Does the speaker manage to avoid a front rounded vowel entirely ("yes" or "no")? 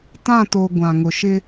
yes